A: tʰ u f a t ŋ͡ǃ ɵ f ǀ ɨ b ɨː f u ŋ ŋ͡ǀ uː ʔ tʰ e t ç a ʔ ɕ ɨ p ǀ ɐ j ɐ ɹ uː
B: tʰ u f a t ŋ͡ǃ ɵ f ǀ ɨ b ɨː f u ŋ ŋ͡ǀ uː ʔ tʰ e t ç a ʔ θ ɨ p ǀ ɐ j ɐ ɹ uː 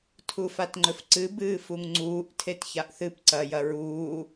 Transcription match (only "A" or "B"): B